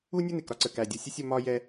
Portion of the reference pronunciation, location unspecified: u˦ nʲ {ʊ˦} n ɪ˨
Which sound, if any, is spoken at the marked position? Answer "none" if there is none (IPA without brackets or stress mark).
ʊ˦